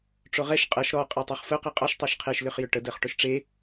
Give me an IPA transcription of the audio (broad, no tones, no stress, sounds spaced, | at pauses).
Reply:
ʈ͡ʂ o ʁ ɛ ʃ qʼ ɜ ʃ ɾ ɔ qʼ e tˤ ø χ f ʊ q i qʼ ɔ ʃ tˤ ɛ ʃ qʰ e ʃ l ʏ χ j ʏ ʈ ə d ɜ χ ʈ ʊ ʃ ʈ͡ʂ e